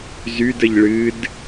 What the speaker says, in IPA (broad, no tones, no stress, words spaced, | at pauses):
zydəʎ ɭɨd